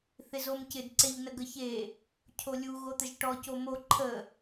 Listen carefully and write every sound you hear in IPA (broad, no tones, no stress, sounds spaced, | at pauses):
θ ɪ z o m c ɪ d ǀ e ʎ n ə ɡ ə ç e | cʰ o lʲ u ɣ o t̪ ə ʒ ʈ ɔ c o m o ǃʰ ə